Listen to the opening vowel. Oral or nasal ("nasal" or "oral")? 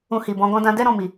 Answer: nasal